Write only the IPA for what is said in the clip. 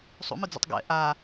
sˤ ṵ m ʊ d͡z o̰ tˤ ɡ ɛ̰ ʔ a

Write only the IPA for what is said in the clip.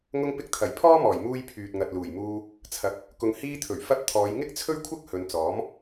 ŋ ʊ˧ ŋ p ɪ˧ k̚ t̪ʰ ɐ˨˩ j pʰ ɔː˥ m ɔː˨˩ j m uː˧ j pʰ yː˨ t̚ ŋ ɐ˨ t̚ l uː˨˩ j m uː˧ | t͡sʰ ɐ˨˥ k̚ | k ʊ˨˧ ŋ h iː˧ t̪ʰ ɵ˨˩ ɥ f ɐ˧ p̚ t̪ʰ ɔː˨˧ j ŋ ɪ˥ k̚ t͡sʰ ɵ˥ ɥ kʷʰ ɐ˥ k̚ h ɵ˨˧ n t͡s ɔː˨˥ m

